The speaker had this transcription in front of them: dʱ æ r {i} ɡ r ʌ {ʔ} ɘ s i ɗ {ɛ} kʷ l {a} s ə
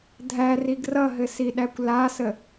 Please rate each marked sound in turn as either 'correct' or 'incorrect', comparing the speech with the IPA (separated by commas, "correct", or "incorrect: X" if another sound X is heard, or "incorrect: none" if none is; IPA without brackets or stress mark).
correct, incorrect: ɦ, incorrect: æ, correct